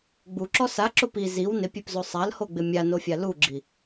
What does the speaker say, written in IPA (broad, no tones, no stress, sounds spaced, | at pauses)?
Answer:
ɡ͡b u ǁ ɔ s a ǁ ʊ p i z i w n ɪ pʲ e p z o sˤ a l h o ɡ͡b ɪ mʲ a n o fʲ a l u ɡ͡ǁ i